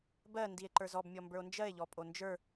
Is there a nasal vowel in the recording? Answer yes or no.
no